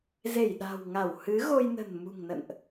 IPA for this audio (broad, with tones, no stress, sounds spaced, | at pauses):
z e˧˩ j ɗ a̤˨˩ w ŋ a˧˩ w h ɨ˨˦ ɣ o˧ j n ə̤˨˩ n m ṳ˨˩ ŋ n ə̰˧˨ n ʔ